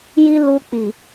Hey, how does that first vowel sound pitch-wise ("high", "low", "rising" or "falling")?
high